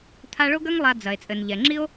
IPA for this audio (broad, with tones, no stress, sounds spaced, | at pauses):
t̪ʰ a˦ ɭ o˥ ɡ ɐ˥ ŋ lˠ a˨ d͡z ɐ˩ e̯ t͡sʼ ɘ˩ n ʎ ɛ˩ ŋ͡ǁ i˥ o̯